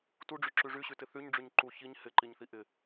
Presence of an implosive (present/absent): absent